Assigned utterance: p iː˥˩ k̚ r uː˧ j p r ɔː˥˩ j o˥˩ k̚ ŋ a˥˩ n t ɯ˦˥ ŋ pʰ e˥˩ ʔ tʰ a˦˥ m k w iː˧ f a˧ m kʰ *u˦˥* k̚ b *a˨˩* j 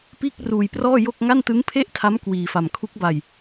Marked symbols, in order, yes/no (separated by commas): yes, no